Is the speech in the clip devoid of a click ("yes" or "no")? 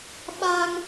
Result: yes